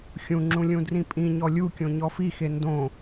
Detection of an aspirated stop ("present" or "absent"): absent